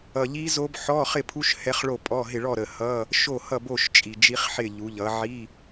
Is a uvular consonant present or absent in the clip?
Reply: present